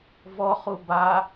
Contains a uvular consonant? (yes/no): yes